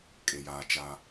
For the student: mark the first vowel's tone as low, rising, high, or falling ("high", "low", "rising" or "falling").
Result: low